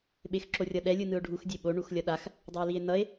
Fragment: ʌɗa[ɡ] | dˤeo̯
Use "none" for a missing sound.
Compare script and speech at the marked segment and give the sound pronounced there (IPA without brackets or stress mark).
x